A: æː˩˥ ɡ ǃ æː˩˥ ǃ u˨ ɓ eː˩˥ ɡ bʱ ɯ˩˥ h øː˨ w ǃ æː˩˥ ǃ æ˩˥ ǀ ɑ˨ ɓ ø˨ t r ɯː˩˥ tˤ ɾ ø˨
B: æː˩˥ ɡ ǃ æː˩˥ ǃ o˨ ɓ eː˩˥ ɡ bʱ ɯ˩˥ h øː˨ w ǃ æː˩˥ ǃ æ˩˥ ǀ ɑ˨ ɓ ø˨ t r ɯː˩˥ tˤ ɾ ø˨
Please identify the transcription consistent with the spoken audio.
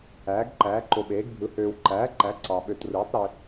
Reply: B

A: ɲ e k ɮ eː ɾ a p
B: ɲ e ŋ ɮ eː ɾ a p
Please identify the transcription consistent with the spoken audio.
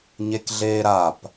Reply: A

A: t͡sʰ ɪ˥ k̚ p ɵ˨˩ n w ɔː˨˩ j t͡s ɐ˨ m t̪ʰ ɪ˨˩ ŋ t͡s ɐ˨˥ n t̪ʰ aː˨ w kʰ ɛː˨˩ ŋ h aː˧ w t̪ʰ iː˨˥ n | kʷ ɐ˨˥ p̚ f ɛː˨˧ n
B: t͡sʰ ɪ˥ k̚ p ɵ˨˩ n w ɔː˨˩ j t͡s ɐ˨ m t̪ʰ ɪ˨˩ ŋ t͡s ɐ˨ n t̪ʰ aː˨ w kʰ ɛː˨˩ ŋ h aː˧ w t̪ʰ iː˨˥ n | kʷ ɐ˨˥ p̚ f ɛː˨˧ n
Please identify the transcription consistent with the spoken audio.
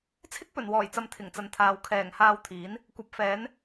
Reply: B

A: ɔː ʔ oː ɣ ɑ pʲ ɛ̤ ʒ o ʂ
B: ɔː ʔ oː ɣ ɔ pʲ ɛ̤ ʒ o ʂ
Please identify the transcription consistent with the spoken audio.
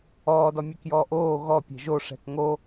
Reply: B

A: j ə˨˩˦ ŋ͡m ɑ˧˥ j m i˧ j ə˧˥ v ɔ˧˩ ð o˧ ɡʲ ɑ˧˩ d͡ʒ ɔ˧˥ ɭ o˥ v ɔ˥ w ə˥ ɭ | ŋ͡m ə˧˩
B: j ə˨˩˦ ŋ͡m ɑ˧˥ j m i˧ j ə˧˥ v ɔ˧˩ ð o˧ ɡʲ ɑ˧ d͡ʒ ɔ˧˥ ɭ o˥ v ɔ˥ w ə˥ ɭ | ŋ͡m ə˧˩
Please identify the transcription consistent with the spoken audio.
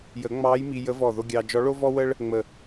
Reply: B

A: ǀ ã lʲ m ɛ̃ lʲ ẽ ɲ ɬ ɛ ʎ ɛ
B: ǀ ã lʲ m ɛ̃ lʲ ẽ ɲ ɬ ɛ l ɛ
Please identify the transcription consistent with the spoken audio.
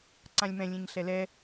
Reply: B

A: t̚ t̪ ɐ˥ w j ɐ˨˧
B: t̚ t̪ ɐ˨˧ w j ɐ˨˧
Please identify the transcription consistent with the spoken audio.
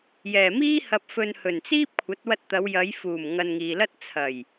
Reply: B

